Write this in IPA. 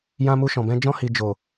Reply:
jã˧mu˧ʃɔ̃˨bɛ̃˧ d͡ʒɔ̃˧hi˨ d͡ʒo˨

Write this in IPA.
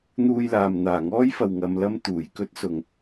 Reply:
n̪uː˧jlaː˨m n̪aː˨˩ŋɔː˥jfɐ˨w ŋɐ˨˧mlɐ˥m t̪uː˨˩jkɵ˥t̚sʊ˨ŋ

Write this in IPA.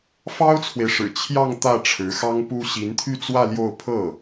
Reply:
fɑ˥ʊ̯t͡sʰwe˨ɪ̯ʂɻ̩˨˩ t͡ɕʰjɑ˥˧ŋ t̪ä˥˩ʈ͡ʂʰɻ̩˧˥xɑ˥ŋpu˥ ɕi˧˥nt̪ʰy˥˧t͡swä˥˧ ljo˥˧ʊ̯ pʰɤ˥˩

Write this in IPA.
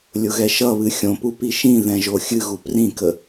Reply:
lʲʊɣɛʃʌβɨ xʲõpu piʃĩðɛ̃ ʒoxʲɨɣu prĩkə

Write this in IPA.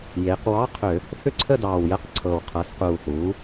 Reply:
jeː˩˧qwɑ˧˥˧ qʰø˧˩˧ | θʏ˥˧ǀʰə˥˧dɑː˨˩wjə˧˥˧q ǀʰɤ˨˩wqʰɤ˩˥s quː˨˩ θuː˩˥

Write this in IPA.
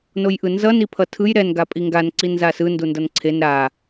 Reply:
nojʔɯnzʌ nipʰʌtʰɯj ɾɛn ɡapʼiŋɡan ǀinzasɯ ndundʌnǀʰen ɾa

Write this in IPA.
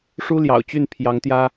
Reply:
ʂu˥ljɑ̰˨˩ʊ̯ t͡ɕy˥˩npʰjɑ˧˥ŋ t̪jä˥

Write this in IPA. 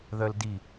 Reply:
ðœldi

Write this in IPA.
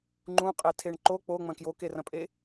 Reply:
ŋ͡ǃũqʼetʰeɳ ǃo k͡poŋ͡mɐ̃ kjokerɐ̃pʼe

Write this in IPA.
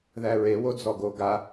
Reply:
ðæɹe wod͡zɔɡo ɡa

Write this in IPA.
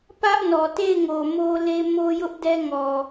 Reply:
pä˦ʔnɔ˨te˦˨ɪ̯ ŋo˨mo˦le˦ mo˦ jʊ˦ʔdɛ˦ŋɔ˨

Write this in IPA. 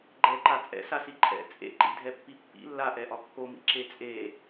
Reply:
ɡ͡ǃɛǃa t͡sʼɛ̰sasi ǃʼɛ̰ t͡sʼḛǃḭdʱɛpːi pːḭ lːaʔɛʔɒ kːomḭǁe t͡sʼe

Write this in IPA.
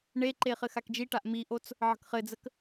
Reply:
ɳeǃe χɘxakd͡ʒiʈaʔ miʔot͡s | ʕə̤kχɘd͡zək

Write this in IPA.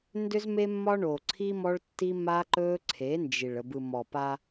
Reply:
ndʏ˦zme˦mːɒ˦ ɳo˨ǀʰi˦mɔ˦ɭ tːi˦ma˦ǃɵ˦ǀʰe˨˦ nd͡ʒi˨ɭ ə˨bɯ˨mɔ˨ pa˦

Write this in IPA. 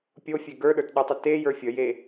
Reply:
pʲofʲe ɡə˞ɗə˞tɗutˤə tejə˞ fʲəje

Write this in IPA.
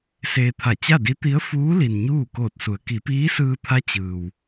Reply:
seː˧t̪ʰa˧˩ t͡ɕa˥˨di˧˥t̪i˧˥ə̯ fuː˧˥li˩n ɲuː˥˨koː˧˩t̚su˩˧ə̯ ki˩˧piː˧˥sɯː˧t̪ʰa˧˥ t͡ɕɯː˩w

